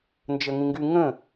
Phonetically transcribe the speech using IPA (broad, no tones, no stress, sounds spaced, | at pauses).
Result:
n d͡ʒ ə ŋ ĩ ŋ ɡ y ŋ ə̃